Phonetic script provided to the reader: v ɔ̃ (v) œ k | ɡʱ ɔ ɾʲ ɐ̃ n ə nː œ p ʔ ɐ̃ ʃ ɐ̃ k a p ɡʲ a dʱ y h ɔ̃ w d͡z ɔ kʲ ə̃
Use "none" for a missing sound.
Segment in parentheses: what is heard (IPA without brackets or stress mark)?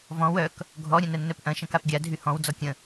w